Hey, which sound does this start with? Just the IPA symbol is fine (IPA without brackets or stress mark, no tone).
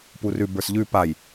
p